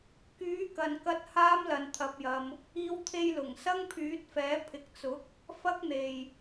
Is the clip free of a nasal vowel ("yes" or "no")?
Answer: yes